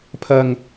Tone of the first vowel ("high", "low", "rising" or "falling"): high